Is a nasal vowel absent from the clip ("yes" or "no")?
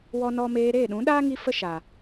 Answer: no